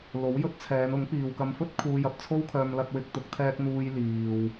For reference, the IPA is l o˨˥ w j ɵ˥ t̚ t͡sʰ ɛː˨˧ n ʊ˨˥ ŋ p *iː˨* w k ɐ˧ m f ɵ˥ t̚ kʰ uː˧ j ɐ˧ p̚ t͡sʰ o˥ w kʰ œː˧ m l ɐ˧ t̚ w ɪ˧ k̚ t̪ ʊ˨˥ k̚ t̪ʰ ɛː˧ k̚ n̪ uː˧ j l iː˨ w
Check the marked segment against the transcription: correct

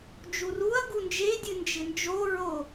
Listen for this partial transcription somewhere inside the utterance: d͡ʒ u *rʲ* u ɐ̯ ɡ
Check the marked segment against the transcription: incorrect: r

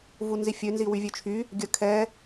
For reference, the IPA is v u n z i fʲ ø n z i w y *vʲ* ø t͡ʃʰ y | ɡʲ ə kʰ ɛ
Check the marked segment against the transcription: correct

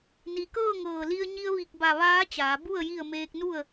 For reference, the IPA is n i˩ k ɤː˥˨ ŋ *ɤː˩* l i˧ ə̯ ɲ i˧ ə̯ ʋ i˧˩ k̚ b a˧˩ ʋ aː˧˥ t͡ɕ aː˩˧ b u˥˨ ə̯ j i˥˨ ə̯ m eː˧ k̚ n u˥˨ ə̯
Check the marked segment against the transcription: incorrect: ɤː˧˩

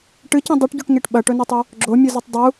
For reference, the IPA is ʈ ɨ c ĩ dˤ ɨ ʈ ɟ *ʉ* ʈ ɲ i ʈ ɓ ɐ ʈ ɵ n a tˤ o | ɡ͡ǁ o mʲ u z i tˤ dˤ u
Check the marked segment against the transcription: correct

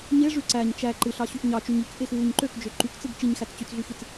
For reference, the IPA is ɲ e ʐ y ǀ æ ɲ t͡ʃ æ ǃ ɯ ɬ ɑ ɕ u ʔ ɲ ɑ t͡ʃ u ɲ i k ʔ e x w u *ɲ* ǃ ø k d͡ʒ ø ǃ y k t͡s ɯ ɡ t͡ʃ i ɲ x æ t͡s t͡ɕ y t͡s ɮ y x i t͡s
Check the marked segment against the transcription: correct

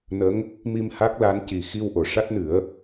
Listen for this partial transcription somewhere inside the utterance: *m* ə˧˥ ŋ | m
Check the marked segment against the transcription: incorrect: n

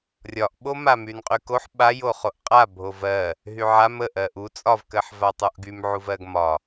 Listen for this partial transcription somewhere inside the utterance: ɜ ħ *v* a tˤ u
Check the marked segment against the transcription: correct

